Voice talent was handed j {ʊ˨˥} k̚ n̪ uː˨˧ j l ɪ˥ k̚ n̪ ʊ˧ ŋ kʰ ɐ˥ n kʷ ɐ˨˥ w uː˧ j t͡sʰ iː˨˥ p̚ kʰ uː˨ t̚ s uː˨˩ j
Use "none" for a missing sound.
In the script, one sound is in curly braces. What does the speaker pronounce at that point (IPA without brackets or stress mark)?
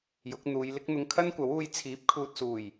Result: ʊ˨˥